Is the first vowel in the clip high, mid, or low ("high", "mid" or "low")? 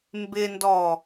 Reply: high